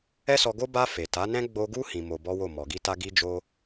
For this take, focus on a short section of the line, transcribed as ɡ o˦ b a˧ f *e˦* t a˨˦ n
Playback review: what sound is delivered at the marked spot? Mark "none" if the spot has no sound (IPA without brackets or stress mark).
e˨